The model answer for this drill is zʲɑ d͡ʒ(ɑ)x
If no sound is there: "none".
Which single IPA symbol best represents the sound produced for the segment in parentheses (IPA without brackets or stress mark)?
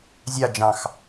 ɑ̃